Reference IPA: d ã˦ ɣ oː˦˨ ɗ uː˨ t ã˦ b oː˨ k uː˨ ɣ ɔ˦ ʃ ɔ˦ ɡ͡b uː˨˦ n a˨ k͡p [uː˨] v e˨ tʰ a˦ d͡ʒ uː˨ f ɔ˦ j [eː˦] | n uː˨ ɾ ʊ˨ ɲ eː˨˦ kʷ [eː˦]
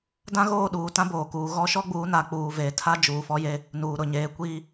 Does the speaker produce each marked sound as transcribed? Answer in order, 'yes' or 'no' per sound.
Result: yes, no, no

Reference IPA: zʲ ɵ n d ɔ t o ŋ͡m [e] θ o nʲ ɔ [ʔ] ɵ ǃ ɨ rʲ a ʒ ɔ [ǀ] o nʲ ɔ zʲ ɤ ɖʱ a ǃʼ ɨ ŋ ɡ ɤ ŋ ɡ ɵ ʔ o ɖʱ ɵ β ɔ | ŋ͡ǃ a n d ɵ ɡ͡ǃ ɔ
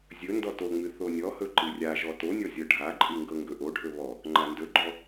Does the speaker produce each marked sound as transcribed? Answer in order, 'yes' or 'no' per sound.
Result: no, no, no

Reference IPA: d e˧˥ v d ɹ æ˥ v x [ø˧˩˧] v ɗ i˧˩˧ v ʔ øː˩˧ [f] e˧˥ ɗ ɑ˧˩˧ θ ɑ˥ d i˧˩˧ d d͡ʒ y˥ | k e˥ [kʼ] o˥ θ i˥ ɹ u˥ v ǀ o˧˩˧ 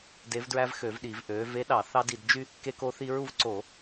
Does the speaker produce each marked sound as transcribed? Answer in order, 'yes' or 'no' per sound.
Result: yes, no, no

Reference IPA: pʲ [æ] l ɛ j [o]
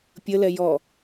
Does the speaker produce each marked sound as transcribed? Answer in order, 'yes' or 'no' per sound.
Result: no, no

